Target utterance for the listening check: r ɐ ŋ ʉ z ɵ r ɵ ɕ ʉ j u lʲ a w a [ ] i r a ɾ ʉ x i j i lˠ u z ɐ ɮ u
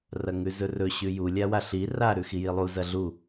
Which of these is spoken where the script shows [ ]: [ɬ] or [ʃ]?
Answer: ɬ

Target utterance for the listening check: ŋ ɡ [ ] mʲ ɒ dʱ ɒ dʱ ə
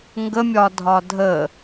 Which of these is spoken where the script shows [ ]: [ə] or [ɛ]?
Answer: ə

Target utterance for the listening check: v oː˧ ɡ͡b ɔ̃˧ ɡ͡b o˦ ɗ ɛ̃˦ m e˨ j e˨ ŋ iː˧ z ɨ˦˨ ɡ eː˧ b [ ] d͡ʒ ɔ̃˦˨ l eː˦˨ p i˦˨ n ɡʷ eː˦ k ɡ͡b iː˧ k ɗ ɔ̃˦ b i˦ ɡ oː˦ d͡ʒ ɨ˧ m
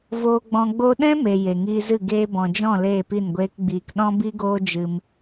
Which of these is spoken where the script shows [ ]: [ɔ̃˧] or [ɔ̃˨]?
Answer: ɔ̃˨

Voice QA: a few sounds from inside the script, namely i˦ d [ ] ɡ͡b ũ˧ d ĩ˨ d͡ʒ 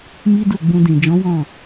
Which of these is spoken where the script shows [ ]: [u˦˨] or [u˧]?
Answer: u˦˨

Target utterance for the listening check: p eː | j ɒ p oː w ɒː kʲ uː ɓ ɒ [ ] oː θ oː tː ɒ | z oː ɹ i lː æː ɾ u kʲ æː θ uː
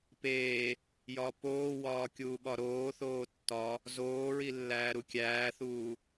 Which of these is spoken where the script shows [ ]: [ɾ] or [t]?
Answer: ɾ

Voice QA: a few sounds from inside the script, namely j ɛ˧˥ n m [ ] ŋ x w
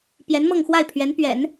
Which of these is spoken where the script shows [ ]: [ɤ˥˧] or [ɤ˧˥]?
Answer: ɤ˥˧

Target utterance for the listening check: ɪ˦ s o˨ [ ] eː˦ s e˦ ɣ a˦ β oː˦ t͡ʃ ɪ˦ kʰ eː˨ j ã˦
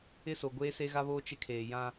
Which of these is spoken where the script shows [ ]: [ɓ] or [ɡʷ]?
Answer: ɡʷ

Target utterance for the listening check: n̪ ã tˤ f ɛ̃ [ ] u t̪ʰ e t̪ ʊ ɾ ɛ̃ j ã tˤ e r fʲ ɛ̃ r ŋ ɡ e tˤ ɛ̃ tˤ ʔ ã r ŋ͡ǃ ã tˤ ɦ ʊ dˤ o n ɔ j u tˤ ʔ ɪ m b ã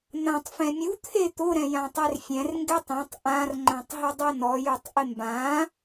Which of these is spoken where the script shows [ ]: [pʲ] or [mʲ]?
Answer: mʲ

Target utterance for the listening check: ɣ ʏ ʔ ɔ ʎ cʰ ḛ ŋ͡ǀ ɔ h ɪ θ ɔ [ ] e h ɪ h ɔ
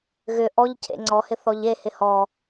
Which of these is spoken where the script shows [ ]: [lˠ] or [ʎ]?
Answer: ʎ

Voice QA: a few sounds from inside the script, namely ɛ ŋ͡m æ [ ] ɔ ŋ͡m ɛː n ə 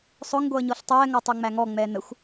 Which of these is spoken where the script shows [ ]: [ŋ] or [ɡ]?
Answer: ŋ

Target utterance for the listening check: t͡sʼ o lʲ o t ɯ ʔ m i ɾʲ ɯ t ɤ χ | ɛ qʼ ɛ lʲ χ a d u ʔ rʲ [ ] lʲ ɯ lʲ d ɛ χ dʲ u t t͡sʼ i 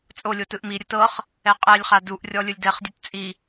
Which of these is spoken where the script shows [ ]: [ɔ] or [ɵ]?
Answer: ɔ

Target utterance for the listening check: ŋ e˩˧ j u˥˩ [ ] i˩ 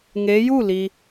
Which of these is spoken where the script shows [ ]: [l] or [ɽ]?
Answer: l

